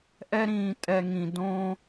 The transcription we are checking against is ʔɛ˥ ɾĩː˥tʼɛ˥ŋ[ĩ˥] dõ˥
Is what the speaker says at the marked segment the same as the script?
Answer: yes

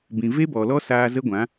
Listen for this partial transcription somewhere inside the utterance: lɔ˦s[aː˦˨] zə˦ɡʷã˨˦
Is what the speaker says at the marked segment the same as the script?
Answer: no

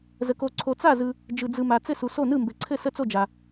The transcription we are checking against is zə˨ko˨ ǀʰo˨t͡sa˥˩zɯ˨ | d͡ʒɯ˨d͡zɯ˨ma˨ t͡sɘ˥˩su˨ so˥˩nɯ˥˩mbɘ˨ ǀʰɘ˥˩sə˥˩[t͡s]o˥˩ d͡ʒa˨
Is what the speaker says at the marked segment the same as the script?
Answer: yes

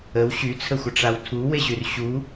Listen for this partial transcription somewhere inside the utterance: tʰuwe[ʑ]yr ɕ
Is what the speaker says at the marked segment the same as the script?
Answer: yes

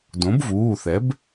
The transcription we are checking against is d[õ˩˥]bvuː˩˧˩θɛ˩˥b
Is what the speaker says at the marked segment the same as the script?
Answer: yes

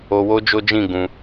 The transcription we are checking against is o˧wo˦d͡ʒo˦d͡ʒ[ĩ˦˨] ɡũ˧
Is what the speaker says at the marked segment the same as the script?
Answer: yes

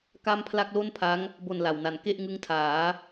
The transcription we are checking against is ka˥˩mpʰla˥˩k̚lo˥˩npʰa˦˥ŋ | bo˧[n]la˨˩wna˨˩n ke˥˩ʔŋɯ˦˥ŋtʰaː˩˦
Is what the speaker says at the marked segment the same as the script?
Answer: yes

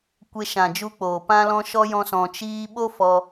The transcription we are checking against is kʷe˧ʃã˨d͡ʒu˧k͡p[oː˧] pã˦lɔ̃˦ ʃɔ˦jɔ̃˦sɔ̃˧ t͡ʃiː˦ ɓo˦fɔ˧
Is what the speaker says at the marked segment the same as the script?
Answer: no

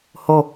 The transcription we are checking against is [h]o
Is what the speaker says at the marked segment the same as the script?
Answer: yes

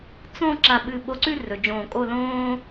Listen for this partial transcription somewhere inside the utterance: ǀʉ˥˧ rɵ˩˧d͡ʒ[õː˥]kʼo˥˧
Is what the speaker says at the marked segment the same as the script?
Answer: no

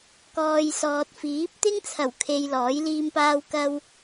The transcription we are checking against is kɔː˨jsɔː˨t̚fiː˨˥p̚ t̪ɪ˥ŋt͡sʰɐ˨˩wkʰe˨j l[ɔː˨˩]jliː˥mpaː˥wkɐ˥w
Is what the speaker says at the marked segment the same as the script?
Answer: no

